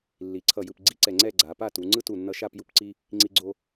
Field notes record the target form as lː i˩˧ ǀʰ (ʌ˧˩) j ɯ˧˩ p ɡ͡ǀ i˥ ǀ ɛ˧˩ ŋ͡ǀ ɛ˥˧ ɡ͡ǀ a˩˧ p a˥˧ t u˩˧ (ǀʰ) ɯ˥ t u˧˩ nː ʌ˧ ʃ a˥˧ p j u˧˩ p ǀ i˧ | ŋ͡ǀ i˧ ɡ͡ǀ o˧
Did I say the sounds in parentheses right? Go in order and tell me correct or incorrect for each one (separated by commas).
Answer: correct, incorrect